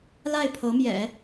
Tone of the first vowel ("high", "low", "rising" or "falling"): falling